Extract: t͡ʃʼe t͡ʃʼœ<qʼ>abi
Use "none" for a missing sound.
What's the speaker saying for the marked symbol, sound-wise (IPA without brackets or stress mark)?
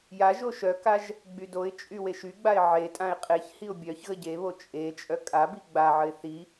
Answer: kʼ